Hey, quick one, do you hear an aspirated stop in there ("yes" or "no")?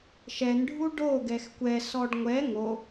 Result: no